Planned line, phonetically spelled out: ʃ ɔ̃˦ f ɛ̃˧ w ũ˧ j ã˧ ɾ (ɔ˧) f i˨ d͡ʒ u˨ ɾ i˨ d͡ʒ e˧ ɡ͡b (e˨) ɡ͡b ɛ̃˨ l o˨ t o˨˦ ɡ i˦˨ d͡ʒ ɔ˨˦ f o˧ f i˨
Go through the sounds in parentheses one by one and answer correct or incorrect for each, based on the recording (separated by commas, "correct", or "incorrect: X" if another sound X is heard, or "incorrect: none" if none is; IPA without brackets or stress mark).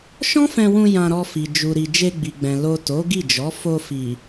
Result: correct, incorrect: i˨